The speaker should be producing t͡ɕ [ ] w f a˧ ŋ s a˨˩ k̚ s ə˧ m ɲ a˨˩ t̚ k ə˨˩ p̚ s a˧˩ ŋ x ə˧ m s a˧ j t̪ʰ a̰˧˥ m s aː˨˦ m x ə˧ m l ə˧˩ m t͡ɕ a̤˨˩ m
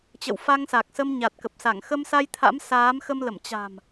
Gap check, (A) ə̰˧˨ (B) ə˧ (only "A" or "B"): A